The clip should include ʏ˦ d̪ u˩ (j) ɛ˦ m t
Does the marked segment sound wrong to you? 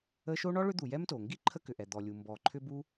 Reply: no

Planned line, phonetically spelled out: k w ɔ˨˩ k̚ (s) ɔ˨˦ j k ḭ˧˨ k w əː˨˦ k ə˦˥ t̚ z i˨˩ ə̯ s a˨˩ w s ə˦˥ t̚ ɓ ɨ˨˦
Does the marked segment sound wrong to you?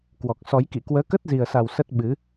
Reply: no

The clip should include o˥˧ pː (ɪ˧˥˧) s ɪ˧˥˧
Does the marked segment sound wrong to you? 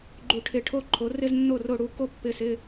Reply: no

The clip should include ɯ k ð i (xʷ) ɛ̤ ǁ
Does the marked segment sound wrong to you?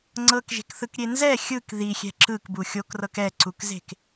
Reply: yes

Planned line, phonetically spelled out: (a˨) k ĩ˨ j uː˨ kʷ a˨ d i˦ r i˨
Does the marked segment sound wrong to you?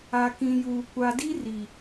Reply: no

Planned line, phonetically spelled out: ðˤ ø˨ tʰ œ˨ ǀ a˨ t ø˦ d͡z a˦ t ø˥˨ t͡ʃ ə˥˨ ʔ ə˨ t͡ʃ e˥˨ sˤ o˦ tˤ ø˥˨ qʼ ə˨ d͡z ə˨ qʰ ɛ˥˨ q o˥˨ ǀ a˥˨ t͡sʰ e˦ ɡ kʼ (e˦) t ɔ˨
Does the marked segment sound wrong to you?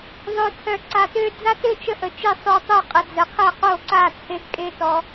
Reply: no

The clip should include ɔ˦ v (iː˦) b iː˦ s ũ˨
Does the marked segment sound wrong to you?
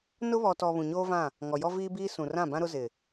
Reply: no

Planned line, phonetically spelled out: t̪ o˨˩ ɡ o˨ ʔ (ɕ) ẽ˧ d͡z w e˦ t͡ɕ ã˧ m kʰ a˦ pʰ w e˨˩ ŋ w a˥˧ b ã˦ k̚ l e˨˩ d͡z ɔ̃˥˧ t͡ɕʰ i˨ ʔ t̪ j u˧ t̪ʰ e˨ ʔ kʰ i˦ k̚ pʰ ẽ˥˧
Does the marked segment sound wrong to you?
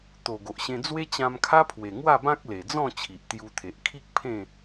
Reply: no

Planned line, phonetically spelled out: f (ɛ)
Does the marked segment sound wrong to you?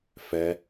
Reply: no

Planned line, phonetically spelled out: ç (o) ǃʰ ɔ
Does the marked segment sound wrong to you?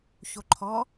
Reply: no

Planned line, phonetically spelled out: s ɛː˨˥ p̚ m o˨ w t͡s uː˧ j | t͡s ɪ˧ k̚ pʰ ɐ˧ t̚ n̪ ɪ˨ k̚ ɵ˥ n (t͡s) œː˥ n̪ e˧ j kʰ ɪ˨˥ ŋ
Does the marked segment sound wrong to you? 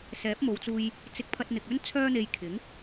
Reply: yes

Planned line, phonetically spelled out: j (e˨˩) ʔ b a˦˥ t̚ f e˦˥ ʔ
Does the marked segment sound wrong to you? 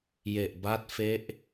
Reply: no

